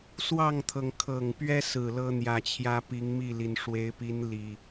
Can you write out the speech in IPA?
swɑ˥˨ŋt̪ʰɤ˩ŋ kʰɤ˨˩ŋ pɥɛ˦sɹ̩˨˩ lɤ˦n̪jä˨˩t͡ɕʰjä˦ pi˨˦ŋmi˥˨li˩n ʂwe˨˦ɪ̯pi˨˦n li˨˩

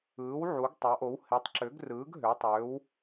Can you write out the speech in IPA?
ɯː˩˥w ʕu˩˥ɡtˤɑ˩˥ʔo˩˥w he˩˥tˤǁø˩˥ɡrɯː˩˥ɡ ɦø˩˥tˤøː˩˥w

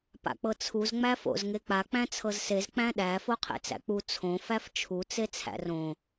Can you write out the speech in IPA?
pa̰k͡pɤt͡sʰuz ŋ͡mæfo̰z ŋek͡pa k͡pæ̃t͡sʰɤzsez k͡pæ̃ɗæ foqʰḛt͡sæ̰k͡pu t͡sʰõ fæft͡ʃʰu t͡set͡sʰæ̰rõ

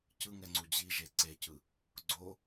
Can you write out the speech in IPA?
cɯŋɛŋ͡ǀu d͡ʑiʒe ǀecɯ | ɡ͡ǀo

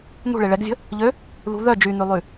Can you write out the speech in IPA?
n̪ṳɭe ɭɛɡzʲə̤ | ʎø | ðṳ ðœ d͡ʒyn̪ylˠy

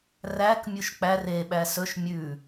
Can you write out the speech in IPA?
ræk mʲuʃk͡pær e ɓæsɵʃ mʲʉ

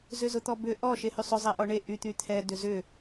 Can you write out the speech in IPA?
zʏzʊt̪ɔbʏ ʔɔ ʃehysˤʏ zˤɛʔɔɳe ʔy t̪yt̪ʰɛ dʏzʏ

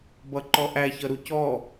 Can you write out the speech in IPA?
bʌǃɔʔæ çʌɾucɔ

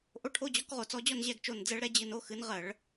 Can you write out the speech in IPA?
ʔo˧˥ʈʰo˧˥˧d͡ʑɔ˧˥k ʁo˧˩˧t͡sɔ˧˥d͡ʑɔ˥˧nʑɛ˥˧ɡ t͡ʃo˧˩nd͡zɛ˧˥ɭɾɛ˩˥ d͡ʑɨ˧˩no˧˥˧xɨ˩˥n ʁɜ˧˩˧ɭ

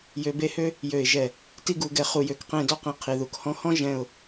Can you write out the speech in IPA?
jø˧be˥˧hø˥ | jø˧˩ɪ̯ʒɛ˧˩ | ti˥˧ɡu˩˧ɡɛ˧ χu˧jø˧˩kqẽ˥˧ dɔ˥qẽ˧ qʰi˩˧ðu˩˧khɔ̃˥ hɔ̃˥ ʒɛ̃˥˧ʊ̯

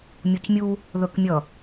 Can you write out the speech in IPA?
mʲucmʲu | ðɵkmʲʌ

